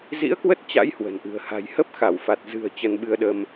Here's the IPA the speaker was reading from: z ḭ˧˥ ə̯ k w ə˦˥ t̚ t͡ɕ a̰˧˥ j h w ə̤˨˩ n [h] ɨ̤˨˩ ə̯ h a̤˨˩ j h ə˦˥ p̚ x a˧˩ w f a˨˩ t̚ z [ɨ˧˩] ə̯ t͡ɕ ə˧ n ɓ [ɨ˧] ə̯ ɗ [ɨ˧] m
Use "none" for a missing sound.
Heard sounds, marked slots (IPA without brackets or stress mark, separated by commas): ʔ, ɨ̤˨˩, ɨ˧, ə˧